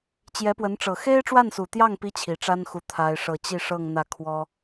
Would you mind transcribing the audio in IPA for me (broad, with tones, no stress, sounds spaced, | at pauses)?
t͡ɕ j ɛ˧˥ p w ə˧˥ n ʈ͡ʂ ɤ˨˩ x e˥ ɪ̯ ʈ͡ʂ w a˥˩ n s u˨˩ t̪ j ɑ˥˩ ŋ p i˥ t͡ɕʰ i˨˩ ʈ͡ʂ a˥ n x u˧˥ t̪ʰ a˥ ɪ̯ ʂ ɤ˥˧ t͡ɕ i˥˧ ʂ ɤ˥˧ ŋ n̪ ä˥˩ kʰ w ɔ˥